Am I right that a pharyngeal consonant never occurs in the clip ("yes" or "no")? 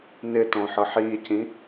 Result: no